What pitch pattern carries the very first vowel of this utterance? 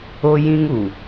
high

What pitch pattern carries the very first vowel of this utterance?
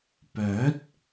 rising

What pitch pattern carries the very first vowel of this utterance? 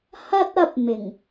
high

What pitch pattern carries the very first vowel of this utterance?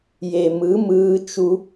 low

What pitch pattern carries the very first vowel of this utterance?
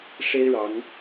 high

